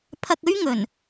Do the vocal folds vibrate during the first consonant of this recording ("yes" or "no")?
no